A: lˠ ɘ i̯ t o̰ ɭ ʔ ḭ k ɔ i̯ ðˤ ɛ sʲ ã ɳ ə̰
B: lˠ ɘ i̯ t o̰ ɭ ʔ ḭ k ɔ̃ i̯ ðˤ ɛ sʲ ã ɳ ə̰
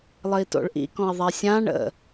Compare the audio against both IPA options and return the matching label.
B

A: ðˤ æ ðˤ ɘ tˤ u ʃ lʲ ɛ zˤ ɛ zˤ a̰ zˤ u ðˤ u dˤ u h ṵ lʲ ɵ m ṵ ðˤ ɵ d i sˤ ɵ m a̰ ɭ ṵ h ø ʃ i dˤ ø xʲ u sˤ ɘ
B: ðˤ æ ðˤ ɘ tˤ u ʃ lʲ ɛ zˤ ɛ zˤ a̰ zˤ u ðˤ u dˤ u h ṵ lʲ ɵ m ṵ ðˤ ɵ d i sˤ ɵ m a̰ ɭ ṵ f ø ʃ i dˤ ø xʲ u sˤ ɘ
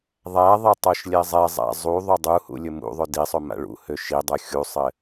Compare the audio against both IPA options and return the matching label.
A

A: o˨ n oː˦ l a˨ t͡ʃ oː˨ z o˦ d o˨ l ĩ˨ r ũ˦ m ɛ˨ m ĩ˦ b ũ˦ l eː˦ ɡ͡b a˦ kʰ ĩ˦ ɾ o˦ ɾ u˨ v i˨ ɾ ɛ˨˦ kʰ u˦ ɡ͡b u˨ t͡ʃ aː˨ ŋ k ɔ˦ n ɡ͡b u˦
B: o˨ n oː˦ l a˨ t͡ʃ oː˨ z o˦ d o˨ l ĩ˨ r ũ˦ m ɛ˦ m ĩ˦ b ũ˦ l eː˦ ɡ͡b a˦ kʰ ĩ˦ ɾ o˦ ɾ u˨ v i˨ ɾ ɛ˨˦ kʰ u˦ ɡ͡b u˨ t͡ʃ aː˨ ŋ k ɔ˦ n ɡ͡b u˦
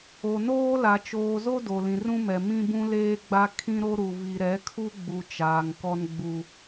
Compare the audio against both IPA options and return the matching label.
A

